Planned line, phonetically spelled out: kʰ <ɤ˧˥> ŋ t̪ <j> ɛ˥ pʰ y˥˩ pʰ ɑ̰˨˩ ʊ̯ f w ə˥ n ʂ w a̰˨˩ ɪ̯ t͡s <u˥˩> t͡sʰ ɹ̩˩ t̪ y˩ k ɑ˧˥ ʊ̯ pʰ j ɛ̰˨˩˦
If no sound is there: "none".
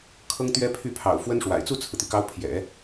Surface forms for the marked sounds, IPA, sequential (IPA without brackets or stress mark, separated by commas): ɤ˥, ɥ, u˥˩